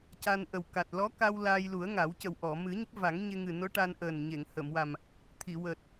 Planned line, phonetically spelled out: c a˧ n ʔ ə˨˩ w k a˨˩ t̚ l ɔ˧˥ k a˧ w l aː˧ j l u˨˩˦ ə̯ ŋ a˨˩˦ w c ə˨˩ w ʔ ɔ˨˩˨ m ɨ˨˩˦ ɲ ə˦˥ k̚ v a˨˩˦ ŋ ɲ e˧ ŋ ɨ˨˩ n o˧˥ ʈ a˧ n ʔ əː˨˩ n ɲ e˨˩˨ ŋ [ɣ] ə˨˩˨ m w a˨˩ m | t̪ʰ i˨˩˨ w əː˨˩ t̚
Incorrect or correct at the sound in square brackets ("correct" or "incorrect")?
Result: incorrect